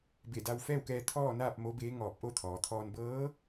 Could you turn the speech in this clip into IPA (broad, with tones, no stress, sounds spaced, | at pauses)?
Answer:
b e˧˩ d a˧ w f ɛː˥˨ w k ɛː˧ t̪ʰ ɔː˥˨ n aː˥˨ p̚ m o˧˥ b eː˧˥ ŋ ɔː˧˩ p̚ ʔ o˥˨ t̪ʰ ɔː˩ t̪ʰ ɔː˧ n b ɤː˧˥